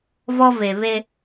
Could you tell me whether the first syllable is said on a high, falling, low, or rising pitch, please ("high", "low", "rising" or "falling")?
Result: high